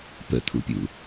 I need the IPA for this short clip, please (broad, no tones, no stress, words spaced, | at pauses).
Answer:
pə̰t̪ʰṵpʲṵ